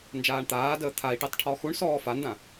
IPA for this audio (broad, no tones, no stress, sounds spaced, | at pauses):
n d͡ʒ aː ɳ t̪ aː d əː t̪ʰ a i̯ ʈ i tˤ ʈʰ ɔ x u ɳ s ɔː f a n d ã